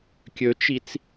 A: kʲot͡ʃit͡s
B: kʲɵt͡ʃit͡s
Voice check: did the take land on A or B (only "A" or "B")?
B